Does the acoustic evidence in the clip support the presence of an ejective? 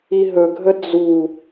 no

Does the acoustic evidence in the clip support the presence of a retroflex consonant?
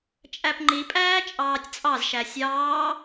no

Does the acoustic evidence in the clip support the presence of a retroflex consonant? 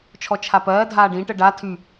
yes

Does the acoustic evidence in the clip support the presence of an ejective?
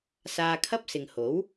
no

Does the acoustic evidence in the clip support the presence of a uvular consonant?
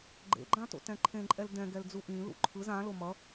no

